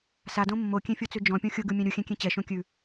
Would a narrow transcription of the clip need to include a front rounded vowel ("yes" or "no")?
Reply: no